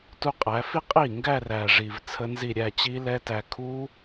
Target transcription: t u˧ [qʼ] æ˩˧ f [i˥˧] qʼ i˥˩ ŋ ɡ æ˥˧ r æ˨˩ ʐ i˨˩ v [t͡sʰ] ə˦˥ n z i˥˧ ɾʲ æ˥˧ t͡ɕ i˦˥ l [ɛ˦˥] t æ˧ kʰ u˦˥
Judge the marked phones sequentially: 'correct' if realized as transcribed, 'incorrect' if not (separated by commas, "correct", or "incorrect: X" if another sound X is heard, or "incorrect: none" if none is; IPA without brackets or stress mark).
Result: correct, correct, correct, correct